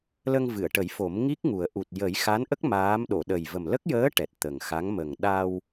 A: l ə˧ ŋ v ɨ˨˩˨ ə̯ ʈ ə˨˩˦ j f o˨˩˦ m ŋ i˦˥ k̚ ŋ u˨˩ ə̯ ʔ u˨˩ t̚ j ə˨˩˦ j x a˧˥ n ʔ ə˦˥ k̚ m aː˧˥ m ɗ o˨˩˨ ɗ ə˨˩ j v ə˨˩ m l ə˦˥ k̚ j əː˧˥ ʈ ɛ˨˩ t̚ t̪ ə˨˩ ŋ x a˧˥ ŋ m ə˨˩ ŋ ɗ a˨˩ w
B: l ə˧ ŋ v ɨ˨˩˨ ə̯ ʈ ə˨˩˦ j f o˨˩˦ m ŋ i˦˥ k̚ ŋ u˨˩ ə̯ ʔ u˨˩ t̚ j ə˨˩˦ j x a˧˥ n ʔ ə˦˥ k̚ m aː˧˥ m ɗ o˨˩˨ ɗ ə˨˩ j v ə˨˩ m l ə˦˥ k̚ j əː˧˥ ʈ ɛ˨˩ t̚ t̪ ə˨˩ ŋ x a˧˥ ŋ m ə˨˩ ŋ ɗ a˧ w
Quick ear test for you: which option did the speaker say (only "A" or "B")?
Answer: B